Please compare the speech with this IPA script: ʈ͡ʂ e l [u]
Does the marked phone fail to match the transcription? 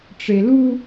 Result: no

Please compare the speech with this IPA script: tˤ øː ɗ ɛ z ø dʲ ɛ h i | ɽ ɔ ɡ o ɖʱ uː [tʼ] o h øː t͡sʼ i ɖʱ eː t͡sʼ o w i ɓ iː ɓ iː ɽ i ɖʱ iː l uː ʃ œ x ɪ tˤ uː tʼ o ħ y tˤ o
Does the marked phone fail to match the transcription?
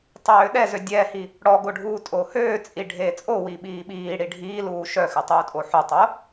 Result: no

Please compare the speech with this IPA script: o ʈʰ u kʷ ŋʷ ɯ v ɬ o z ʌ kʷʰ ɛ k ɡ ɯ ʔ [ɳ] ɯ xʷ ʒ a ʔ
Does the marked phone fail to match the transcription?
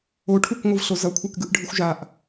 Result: yes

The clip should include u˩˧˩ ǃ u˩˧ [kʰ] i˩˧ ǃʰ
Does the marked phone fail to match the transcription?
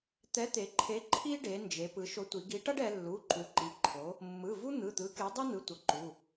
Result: yes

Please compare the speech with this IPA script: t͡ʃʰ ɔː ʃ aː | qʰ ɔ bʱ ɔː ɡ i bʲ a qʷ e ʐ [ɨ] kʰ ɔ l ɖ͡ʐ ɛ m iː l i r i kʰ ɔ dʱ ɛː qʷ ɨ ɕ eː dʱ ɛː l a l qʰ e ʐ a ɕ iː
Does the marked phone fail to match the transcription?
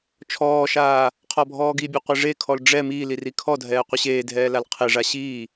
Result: yes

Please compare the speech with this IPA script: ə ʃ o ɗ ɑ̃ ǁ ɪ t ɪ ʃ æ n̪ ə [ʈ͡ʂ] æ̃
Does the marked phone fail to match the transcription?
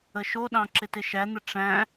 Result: no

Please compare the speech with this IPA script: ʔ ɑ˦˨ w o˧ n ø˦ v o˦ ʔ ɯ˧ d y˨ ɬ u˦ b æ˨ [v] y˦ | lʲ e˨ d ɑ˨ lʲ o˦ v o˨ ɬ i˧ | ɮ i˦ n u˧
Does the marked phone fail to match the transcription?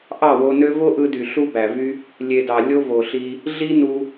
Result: no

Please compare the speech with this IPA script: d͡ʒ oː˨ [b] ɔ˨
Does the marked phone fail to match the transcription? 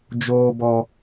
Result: no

